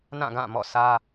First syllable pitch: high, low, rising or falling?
falling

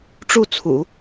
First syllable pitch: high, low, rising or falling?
falling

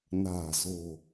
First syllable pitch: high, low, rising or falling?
low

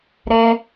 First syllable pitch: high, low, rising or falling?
high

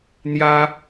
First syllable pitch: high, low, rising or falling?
high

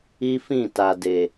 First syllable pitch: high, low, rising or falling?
high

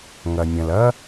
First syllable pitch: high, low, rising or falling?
low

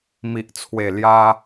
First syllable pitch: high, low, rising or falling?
low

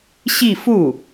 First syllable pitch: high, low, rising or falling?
falling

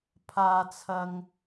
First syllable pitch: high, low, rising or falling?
high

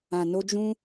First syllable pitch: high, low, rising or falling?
low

